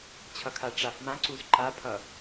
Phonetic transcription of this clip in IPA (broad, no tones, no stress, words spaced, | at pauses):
t͡ɕʰʌkʰaʈ͡ʂaf mãǀuz ǃapʰʌ